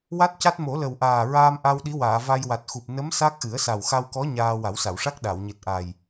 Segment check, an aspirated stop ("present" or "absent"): absent